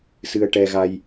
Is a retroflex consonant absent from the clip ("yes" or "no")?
no